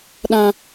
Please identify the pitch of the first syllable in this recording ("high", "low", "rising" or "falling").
high